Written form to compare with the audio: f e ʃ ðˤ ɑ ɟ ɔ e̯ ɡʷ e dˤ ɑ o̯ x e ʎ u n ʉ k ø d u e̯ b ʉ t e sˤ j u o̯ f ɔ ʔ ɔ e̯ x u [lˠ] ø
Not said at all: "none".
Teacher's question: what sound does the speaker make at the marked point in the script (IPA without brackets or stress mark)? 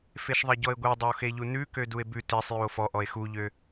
ʎ